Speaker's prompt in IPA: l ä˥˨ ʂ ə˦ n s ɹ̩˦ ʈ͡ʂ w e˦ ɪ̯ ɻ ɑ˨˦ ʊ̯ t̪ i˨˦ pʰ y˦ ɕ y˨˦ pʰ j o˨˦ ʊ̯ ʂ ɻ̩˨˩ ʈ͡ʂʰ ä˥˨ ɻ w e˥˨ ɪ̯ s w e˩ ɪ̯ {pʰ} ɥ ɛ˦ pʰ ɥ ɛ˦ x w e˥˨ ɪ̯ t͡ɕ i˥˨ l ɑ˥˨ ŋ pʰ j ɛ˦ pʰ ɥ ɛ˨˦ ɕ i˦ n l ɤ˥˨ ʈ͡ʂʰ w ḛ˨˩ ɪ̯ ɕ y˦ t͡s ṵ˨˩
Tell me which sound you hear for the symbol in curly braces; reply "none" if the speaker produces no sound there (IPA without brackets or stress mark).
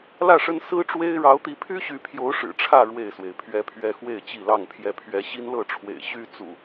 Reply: pʰ